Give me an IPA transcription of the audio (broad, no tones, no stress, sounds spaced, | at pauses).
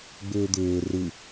ɡ͡b ʏː d̪ ʏː r ɯ